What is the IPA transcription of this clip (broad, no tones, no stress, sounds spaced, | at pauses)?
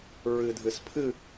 ɹ ɨ dʱ ɨ s pʰ ɨ